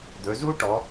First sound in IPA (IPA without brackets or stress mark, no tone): d̪